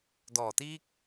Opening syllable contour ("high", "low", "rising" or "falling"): low